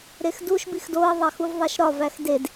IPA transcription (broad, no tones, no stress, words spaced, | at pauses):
ɾexduʃ bixdoə̯ ðˤæxuvðˤæʃɾɒv æxded